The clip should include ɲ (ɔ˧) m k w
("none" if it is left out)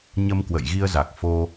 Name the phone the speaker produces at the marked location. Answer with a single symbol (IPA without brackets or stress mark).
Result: ə˧